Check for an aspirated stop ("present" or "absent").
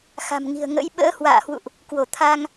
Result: present